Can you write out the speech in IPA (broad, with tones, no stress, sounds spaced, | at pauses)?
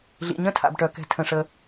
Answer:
ɮ ḭ˩ ɲ ə̃˦˨ tʰ a̰˩ b ʈ œ˩ k ɛ̤˩ tʰ ə̃˩ ʂ ə˩